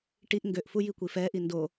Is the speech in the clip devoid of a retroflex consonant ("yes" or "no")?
no